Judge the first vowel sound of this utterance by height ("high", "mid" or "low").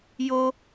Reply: mid